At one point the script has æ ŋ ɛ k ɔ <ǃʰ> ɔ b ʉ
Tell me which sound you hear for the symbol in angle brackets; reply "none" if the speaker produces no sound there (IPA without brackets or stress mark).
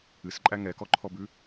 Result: ǃʰ